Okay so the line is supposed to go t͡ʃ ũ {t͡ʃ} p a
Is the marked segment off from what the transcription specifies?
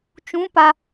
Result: yes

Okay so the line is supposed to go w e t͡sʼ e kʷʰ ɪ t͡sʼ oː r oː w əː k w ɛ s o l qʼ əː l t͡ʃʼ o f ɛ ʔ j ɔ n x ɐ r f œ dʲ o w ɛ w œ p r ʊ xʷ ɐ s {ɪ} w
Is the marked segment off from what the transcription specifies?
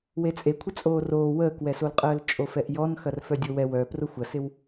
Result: no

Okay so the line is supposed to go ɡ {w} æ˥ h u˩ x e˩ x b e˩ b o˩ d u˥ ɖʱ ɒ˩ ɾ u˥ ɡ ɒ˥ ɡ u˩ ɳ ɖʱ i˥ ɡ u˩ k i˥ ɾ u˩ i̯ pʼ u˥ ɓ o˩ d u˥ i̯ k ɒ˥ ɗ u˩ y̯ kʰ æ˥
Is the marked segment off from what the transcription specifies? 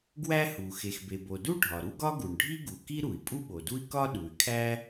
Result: no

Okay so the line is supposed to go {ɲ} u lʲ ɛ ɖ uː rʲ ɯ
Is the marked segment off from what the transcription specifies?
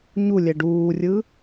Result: no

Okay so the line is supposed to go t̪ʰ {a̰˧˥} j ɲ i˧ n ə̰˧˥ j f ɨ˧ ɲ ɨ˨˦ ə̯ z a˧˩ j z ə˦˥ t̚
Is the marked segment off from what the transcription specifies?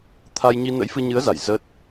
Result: yes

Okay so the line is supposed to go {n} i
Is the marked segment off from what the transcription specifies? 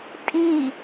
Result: yes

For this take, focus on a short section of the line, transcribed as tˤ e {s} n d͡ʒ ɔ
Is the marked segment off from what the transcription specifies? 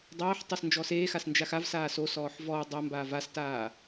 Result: no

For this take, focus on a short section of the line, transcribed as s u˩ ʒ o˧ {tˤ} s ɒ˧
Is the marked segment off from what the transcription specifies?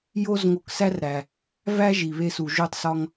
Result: no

